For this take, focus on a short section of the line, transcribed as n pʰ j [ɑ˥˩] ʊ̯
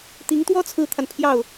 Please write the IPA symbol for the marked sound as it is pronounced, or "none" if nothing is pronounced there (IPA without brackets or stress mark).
ɑ˥˩